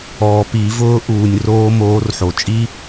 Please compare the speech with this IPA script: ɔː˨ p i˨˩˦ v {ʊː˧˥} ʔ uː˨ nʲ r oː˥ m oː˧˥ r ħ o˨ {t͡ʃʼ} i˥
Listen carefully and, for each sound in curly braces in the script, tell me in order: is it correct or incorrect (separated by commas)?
correct, correct